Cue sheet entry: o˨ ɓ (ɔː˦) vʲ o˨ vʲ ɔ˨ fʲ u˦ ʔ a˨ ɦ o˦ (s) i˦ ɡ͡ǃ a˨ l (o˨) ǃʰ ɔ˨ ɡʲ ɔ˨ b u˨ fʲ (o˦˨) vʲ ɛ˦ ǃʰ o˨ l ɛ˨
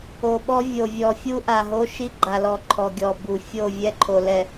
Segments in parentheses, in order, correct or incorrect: incorrect: ɔ˦, incorrect: ʃ, incorrect: ɔ˨, correct

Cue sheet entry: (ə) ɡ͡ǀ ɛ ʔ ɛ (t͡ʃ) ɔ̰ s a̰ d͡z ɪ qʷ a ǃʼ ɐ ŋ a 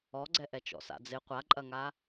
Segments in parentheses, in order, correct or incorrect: incorrect: ɔ, correct

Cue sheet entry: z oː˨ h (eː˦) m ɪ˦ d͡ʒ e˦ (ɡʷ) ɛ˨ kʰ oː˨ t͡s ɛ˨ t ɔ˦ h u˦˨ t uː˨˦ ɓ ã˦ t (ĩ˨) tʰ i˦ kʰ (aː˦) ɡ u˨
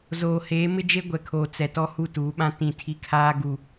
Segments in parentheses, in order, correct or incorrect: incorrect: eː˨˦, correct, incorrect: ĩ˦˨, correct

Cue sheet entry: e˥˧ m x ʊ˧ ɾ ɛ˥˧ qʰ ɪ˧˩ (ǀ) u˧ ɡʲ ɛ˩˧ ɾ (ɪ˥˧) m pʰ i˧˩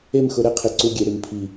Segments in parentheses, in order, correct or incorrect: correct, incorrect: ɪ˩˧

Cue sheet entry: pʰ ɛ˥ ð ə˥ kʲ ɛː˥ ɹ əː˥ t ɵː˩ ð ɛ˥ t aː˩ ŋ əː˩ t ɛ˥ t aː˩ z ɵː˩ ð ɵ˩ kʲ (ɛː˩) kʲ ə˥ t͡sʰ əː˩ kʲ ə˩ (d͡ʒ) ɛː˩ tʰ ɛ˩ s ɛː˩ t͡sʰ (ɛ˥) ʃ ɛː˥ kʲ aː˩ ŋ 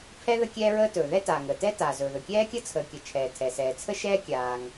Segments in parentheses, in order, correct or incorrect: incorrect: ɛː˥, incorrect: t͡ʃʰ, incorrect: ə˥

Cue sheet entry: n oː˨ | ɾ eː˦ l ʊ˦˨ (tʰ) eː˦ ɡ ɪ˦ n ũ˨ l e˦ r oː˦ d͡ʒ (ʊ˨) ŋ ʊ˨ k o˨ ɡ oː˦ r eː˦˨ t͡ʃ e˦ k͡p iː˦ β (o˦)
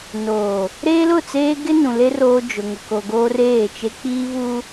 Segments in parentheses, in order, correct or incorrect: incorrect: t͡s, correct, incorrect: u˦

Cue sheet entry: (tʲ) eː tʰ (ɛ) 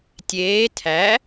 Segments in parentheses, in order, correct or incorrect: correct, incorrect: æ

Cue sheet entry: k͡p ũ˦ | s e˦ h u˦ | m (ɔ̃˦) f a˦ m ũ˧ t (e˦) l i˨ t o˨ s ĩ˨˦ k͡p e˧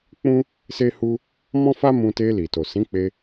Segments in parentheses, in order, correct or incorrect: correct, incorrect: e˧

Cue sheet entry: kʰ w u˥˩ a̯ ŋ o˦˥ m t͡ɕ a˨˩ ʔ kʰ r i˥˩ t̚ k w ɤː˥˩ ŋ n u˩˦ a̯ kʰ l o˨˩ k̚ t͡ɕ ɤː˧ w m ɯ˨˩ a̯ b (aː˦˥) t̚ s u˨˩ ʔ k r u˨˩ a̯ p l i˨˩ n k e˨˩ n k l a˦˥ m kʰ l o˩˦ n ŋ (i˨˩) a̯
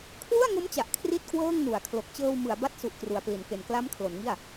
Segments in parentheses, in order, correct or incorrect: incorrect: a˦˥, incorrect: i˥˩

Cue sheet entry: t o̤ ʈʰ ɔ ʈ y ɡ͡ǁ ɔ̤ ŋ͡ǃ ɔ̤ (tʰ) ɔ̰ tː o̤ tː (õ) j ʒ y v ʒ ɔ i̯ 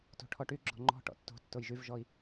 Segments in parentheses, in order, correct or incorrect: incorrect: ʈ, incorrect: o

